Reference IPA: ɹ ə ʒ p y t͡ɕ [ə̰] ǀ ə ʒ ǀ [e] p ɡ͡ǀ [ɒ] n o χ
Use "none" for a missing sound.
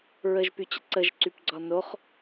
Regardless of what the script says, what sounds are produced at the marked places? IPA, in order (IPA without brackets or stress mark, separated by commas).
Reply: ə̰, y, ɒ